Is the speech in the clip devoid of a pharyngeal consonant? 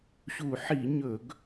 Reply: no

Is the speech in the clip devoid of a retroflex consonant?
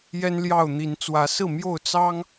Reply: yes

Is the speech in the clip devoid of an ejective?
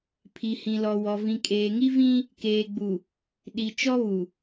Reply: no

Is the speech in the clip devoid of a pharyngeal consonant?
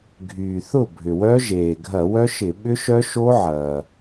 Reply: no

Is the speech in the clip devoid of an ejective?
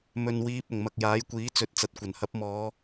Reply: yes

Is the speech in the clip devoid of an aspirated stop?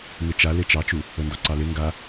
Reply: yes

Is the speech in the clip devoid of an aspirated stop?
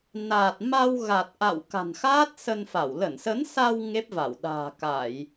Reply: yes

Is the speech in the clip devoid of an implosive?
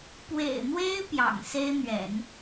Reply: yes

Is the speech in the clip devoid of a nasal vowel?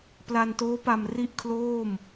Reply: yes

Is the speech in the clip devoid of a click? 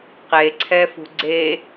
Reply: no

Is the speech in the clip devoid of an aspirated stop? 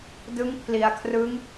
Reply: no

